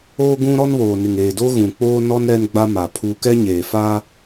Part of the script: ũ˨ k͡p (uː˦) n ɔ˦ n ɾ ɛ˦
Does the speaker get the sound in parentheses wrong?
yes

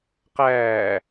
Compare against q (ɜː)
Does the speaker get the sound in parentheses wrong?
yes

